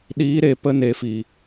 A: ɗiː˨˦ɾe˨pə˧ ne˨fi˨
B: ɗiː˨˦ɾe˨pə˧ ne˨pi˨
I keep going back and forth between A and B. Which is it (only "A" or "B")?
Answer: A